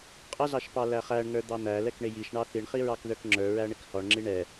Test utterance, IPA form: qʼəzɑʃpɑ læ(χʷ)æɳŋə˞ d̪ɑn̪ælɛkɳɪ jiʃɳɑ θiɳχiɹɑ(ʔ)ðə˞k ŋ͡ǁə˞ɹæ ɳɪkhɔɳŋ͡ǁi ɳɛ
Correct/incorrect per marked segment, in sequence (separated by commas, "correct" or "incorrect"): incorrect, incorrect